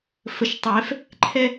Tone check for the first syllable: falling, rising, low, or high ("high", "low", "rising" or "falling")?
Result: rising